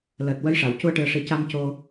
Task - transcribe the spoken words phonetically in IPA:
l əː˨˩ t̚ w ə˧˥ j ʂ a˨˩˨ w c u˧ ə̯ ʈ ɨ˨˩ ə̯ ʂ i˨˩ c a˧ m c o˧

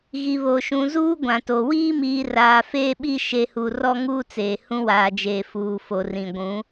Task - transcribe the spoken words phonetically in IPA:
ɣ i˨ β o˨ ʃ ũ˨ z uː˦ ɡʷ ã˨ t o˨ w iː˦ m iː˨ r aː˨ f eː˦ ɓ i˦ ʃ e˨ h u˨ r ɔ˦ ŋ uː˦ t͡s eː˨ h ũ˦ w aː˨ d͡ʒ eː˨ f uː˨ f o˨ r ĩ˨ ɡʷ ũ˨˦

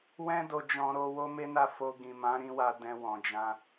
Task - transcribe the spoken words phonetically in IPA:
w ɛ̃˦ d o˧ d͡ʒ ɔ̃˧ ɾ o˧ w o˦ m e˦ n a˦˨ f o˧ ɡ ĩ˨ m ã˨˦ ɾ ĩ˧ w a˧ d ɛ̃˧ w ɔ̃˨ d͡ʒ ã˧

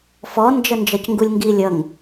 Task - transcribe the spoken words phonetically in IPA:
f ɔ n d͡ʒ ə n d͡ʒ ʌ c ŋ ɡ u lʲ ŋ ɡ i lʲ ʌ ŋ

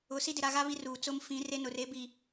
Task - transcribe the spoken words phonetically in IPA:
ʊ˨˦ s i˦ d ɪ˨ ɾ a˦˨ ɣ a˦ β i˦ r uː˨ t͡s ʊ˦ m f ĩ˨˦ r e˦ n ʊ˨ r e˦ b i˨

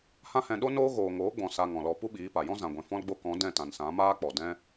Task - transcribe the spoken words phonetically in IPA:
h ã˦ h ɛ̃˧ ɗ o˦ n oː˦ ɣ oː˨ ŋ oː˨˦ ɡ͡b ɔ̃˨ s a˧ ŋ ɔ̃˨ l ɔ˧ p u˦ ɓ iː˨˦ p a˨ j ɔ̃˦ z ã˨ ɡʷ ɛ̃˨ f ɔ̃˧ l ɡ͡b o˧ k ɔ̃˨˦ d ɛ̃˦˨ t ã˨ n s ã˨˦ m aː˦ k͡p ɔ˨ d ɛ̃˦

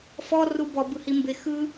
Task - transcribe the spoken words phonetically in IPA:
f ɔ r u b ɔ b ɯ h i m b e x ɯ

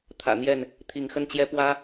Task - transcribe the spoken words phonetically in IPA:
t̪ʰ ä̰˨˩ n̪ j ɛ˥˨ n | t̪ʰ i˨˦ ŋ x ə˦ n t͡ɕ j ɛ˦ p w ä˦

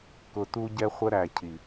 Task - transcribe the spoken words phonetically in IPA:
k ʊ˨ t u˧ ɟ ɛ˧ χʷ ə˦ ɾ æ˨ cʰ i˨

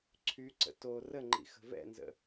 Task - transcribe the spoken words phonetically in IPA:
ǀʰ y ǀ ə̰ t o r ə ŋ͡ǃ ḭ x ə̤ v ɛ̰ n z ə̰

